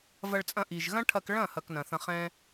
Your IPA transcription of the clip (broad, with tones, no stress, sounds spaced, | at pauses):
v ɐ˧ ɭ t͡sʼ ɐ̃˧ ʔ i˨ ʒ ɣ ɐ̃˦ ʈʰ ɐ˧ k ɭ ɐ̃˦˨ h ɐ˧ k n ɐ̃˨ θ ɐ̃˧ χ ɛ̃˦